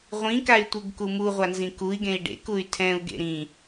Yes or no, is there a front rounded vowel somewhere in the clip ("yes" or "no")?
yes